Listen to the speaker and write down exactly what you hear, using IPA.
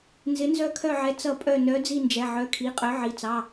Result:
n z ɪ˨˥ n z œ˦˨ kʰ œ˦˨ ʕ ɛ˨˥ t͡s ʌ˦˨ pʼ œ˦˨ n œ˨˥ d͡z i˦˨ n d͡ʒ ɛ˩˧˩ ʕ œ˩˧˩ kʰ i˩˧˩ qʼ œ˨˥ ʕ i˩˧˩ t͡s ɑ˩˧˩

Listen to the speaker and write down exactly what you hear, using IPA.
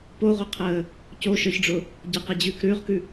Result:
p o ʁʷ ə qʰ əː | c o ʃ ə˞ ç ɖ͡ʐ ʊ | ɟ ɐ q ɛ d͡ʑ ʉː k ɾ ʉː ʁ k ʉ

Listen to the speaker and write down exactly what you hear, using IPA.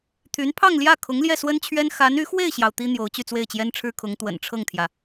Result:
t̪ʰ y˧˥ n pʰ ɑ˥˧ ŋ l j ä˥˩ kʰ ʊ˧˥ ŋ l j ɛ˥˩ s w ə˥ n t͡ɕʰ ɥ ɛ˥ n x a˧˥ n y˧˥ x w e˥˩ ɪ̯ ɕ j ɑ˩ ʊ̯ t̪ i˥ n̪ j o˧˥ ʊ̯ t͡ɕ y˥˧ t͡s w e˥˩ ɪ̯ t͡ɕ j ɛ˥ n ʈ͡ʂʰ ɻ̩˥ kʰ ʊ˧˥ ŋ t̪ w ə̰˨˩ n ʈ͡ʂʰ ɤ˥˩ ŋ t̪ʰ j ä˩

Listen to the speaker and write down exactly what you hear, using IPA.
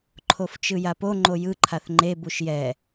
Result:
ǃʰ o f t͡ʃ ɯ j a p o ŋ͡ǃ o j ɯ ǃʰ a θ ŋ͡ǃ e b u ʃ j ɛ

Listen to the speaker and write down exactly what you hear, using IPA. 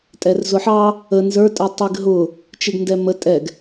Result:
tʼ ɛ r z ʊ ħ ɑ | ə n z ə˞ tʼ ə tˤ i ɡ ɦ ʊ | t͡ʃ ɪ ɡ n d ɛ m ə tʼ ɛ ɡ

